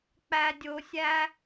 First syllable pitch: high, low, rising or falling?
high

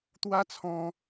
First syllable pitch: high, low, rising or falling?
high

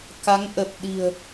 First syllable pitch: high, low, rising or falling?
rising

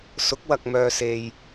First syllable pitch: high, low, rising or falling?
rising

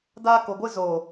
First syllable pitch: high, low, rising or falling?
high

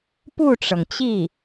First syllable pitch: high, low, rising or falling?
falling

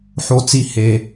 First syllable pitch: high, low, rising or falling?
high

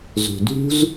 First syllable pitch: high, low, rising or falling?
low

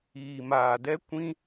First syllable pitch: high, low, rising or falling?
low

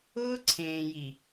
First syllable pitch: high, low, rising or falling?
high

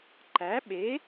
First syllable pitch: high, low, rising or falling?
rising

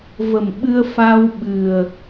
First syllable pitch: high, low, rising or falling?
low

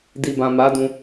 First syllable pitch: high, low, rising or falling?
low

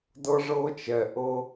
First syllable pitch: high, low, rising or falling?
high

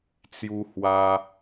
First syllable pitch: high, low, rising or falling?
high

